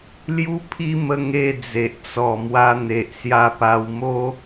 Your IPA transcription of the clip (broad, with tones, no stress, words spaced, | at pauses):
lju˦pʰi˦ mə˦ŋe˥˧ d͡ze˨ʔ t͡sɔ˨˩ mwa˧ n̪e˨ʔ sja˧pa˧wmo˦